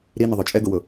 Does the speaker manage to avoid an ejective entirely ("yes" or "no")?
no